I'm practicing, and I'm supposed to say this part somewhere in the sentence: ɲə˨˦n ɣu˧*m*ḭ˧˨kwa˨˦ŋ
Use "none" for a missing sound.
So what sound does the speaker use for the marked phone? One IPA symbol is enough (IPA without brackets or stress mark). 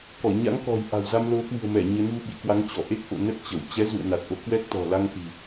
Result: ɓ